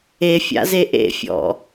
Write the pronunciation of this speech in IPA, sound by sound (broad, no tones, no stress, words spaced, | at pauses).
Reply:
efʲa̰ze ʔḛfʲɔ̰